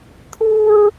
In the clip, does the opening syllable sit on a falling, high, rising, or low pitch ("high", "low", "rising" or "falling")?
high